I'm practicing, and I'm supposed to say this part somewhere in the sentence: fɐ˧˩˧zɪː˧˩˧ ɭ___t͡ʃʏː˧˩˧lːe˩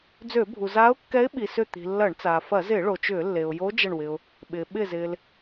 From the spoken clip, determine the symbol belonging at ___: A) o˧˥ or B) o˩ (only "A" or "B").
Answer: B